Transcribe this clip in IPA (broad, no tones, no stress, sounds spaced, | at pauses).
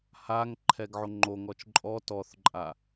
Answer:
h a ŋ ǃʰ ɛ ɡ ʕ o ŋ͡ǃ o ŋ ɔ t͡ʃ ǃʼ ɔ t ɔ θ ǃʼ a